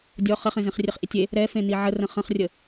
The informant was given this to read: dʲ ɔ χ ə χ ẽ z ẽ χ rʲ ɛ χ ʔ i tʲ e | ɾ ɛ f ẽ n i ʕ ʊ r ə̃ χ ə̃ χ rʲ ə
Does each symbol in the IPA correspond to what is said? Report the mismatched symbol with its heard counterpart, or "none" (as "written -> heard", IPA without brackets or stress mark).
ʊ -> ə